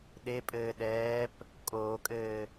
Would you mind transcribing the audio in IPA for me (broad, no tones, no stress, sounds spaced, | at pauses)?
ɗ e pʼ ɘː ɗ ɛː p | kʼ oː kʼ ɘː